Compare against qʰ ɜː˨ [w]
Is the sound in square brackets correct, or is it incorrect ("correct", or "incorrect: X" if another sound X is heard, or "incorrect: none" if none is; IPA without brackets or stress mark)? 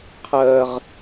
incorrect: ʁ